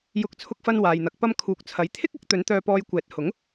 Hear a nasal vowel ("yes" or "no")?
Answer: no